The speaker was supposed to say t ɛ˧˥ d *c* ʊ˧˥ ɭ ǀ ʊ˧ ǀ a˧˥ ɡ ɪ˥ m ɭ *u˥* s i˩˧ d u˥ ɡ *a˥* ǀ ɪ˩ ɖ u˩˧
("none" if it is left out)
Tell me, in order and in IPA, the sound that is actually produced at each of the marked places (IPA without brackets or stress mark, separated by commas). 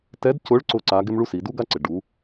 c, u˥, a˥